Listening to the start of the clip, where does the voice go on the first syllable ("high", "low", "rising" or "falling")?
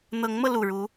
rising